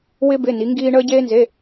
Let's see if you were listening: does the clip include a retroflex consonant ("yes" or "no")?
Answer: yes